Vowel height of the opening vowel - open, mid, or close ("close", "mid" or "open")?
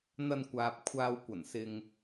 open